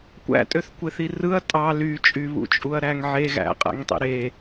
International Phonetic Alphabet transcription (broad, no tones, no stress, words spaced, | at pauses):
kʷæ̰tʼøθkʷeθi rɯɐ̯ tʼɑ lyt͡ʃʼyβṵ t͡ʃʼuɐ̯ɾæŋʕe ɣæ̰qʼæ̰ŋtˤḭ ɾe